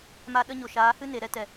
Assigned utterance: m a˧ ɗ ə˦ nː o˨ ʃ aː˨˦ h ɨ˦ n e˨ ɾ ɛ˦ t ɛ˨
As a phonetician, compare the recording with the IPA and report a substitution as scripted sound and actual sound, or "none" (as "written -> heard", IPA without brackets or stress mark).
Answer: nː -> ɲ